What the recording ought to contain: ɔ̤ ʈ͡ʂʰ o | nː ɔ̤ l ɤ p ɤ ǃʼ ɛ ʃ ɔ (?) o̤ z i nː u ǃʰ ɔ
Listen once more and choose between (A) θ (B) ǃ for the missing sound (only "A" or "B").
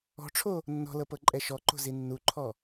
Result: B